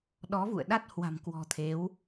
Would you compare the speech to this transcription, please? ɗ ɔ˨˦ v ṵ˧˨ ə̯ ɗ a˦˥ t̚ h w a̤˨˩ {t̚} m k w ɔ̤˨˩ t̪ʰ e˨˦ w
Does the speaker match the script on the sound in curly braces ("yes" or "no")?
no